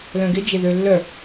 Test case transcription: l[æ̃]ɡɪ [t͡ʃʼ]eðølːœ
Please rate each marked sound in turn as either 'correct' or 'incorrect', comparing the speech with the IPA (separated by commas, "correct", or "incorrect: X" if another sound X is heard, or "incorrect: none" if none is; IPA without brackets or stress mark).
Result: incorrect: œ̃, incorrect: d͡ʒ